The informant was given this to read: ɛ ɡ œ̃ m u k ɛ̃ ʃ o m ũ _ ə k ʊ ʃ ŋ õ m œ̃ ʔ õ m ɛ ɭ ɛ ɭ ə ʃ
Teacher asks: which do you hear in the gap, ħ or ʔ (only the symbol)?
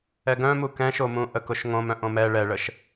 ʔ